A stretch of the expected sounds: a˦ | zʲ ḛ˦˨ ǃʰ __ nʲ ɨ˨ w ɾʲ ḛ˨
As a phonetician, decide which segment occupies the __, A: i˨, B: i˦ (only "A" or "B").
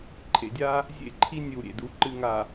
B